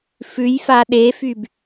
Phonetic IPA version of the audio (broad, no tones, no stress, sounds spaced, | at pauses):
f ʉ j f a ɗ e f y b